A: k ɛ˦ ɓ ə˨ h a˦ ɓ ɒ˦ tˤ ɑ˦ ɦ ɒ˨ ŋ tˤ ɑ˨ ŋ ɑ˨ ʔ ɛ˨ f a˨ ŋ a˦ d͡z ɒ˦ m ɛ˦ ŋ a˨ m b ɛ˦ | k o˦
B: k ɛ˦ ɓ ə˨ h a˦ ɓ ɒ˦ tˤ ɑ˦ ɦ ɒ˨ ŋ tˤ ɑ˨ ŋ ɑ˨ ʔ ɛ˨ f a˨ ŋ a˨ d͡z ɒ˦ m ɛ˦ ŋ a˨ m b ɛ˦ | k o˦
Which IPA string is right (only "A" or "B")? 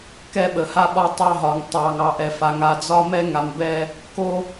B